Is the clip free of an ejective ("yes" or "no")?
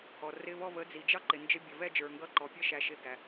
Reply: yes